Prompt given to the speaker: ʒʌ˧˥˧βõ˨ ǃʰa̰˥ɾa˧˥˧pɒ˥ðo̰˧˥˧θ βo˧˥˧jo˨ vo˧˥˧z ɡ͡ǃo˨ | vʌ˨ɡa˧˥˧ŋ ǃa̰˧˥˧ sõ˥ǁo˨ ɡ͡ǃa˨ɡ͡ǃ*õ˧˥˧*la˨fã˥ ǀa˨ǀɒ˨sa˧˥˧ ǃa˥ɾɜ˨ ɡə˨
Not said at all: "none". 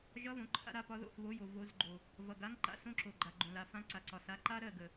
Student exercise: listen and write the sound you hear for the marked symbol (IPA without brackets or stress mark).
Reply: õ˨